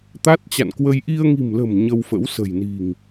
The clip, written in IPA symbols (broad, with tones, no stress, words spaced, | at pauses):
t̪a˦˥t̚t͡ɕa̰˧˨nkwə˧j ʔi˧ə̯ŋi̤˨˩mlə̤˨˩m ɲə˧wfə̰˧˥wsə̤˨˩jni̤˨˩ŋ